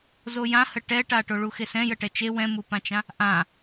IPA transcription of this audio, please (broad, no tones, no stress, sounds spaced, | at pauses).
z o j ã h ə ʈ ɛ ʈ a ʈ o ɭ u x e s ɛ̃ j ə ʈ ɛ t͡ʃ e w ɛ̃ m u p ã t͡ʃ ã | ʔ ã